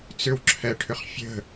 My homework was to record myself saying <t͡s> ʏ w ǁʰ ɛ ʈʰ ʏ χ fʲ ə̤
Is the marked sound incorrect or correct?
correct